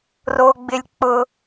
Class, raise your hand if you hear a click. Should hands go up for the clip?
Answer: no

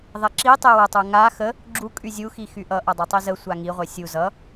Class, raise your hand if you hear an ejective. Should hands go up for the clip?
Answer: yes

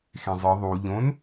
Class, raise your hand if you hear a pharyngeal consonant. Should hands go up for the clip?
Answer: no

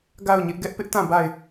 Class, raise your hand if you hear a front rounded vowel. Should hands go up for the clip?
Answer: no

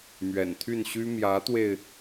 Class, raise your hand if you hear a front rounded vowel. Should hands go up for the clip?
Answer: yes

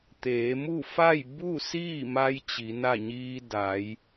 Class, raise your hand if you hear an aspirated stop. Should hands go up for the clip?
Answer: no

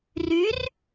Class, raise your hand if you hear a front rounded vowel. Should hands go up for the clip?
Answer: yes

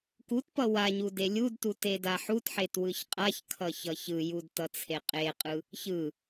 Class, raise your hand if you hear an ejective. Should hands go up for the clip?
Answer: yes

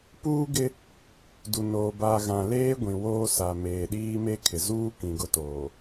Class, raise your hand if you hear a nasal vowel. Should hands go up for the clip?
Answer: yes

